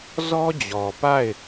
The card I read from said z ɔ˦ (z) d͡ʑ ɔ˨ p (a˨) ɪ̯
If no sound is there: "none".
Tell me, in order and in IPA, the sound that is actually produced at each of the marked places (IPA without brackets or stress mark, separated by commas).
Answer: none, a˦˨